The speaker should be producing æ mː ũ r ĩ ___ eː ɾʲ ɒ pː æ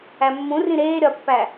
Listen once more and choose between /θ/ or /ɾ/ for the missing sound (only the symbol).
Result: ɾ